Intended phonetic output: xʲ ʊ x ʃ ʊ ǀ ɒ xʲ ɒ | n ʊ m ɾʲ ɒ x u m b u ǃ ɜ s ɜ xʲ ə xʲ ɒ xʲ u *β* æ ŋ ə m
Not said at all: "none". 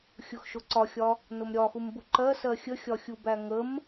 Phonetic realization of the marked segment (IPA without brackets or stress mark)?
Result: b